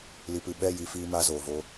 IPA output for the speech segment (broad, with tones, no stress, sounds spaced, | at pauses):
l i˨ p ɨ˨ ɓ ɛ˦˨ j i˧ f iː˧ m a˧ z oː˨ v o˧